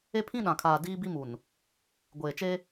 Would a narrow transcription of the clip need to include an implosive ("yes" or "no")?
yes